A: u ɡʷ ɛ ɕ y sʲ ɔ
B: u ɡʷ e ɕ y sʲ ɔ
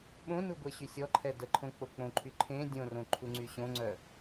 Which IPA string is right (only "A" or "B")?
B